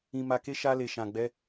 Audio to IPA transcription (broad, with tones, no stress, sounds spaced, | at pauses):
ĩ˧ m a˧ k e˦ ʃ a˦ l e˧ ʃ ã˧ ɡ͡b ɛ˦